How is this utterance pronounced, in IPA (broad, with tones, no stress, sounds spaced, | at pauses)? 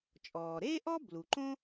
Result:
t͡ʃʼ ɔː˩ ɾ eː˥ ʔ ɔ˥ b l u˩ ǃ õ˥